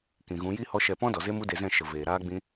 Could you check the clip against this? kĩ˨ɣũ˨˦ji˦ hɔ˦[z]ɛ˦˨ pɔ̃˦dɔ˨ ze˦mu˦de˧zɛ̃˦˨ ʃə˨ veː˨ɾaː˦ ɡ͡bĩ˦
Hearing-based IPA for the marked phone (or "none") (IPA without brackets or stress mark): ʃ